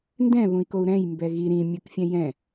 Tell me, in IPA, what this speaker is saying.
n d ɛ̃ β ũ i̯ k o u̯ ɾ ɛ̃ j m b ɛ ɣ i ɾ ĩ mʲ ɯ k fʲ ɛ̃ j ɛ̃

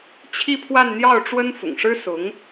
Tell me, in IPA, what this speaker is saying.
t͡ɕʰ i˥˧ pʰ w a˥˧ n n̪ j ɑ˥˩ ʊ̯ ʈ͡ʂ w ə˥ n f ʊ̰˨˩ ŋ ʂ ɻ̩˥ s ʊ˧˥ ŋ

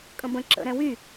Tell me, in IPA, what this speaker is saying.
kʼ ə̃ b ə̃ ǁ ə̰ ɾ ɛ̃ w y

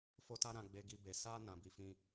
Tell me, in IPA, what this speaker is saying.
f o˦ t a˦ ɾ ã˧ ɡ͡b e˧ ɡ i˧ b e˨ s a˧ n ã˨ b i˧ f ĩ˧

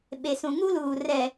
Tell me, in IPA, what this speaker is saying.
ɓ e˨ s ũ˨ ŋ u˦ l uː˨ r ɛ˨

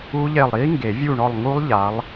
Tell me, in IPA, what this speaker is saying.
u˦˥ ʎ e˦˨ lˠ ɾ i˦˥ ŋ ɡ e˨˩˦ vʲ u˦˨ ɳ ɔ˦˨ lˠ ŋ u˦˥ lˠ ʎ a˨˦ lˠ

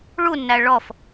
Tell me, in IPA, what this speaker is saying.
ɭ u nː æ ɭ ɔ f

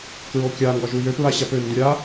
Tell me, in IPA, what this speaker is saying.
k ɹ o kʲ a ŋ ɡ ɒ ʒ u j ø p ɹ a ɕ a p ø n d u ɾʲ a

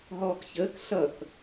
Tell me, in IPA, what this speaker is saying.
ɦ ɔː k ç əː k ɬ ʌ k

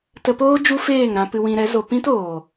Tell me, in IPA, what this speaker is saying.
t ə˧ p oː˦ d͡ʒ u˦ f eː˦˨ ŋ ɾ ã˧ p ɨ˧ w ĩ˧ ɾ ɛ˨˦ z o˧ p ĩ˦ t oː˨

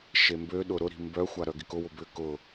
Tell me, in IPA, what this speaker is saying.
ʃ e m b ø ɗ ʊ ɾ ʊ ɾ i̤ m b œ xʷ a ɾ œ ɡ ɪ k ʊ w ʊ b ʏ k ʊ

